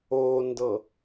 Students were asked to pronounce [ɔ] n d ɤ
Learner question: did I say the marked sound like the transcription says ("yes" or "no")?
no